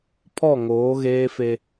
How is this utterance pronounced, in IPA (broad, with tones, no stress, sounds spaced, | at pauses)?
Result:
pʰ ɔ˦˨ ŋ oː˨˦ ɣ eː˦ f e˦